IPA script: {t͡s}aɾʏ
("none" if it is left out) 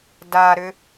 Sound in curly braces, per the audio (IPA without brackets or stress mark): d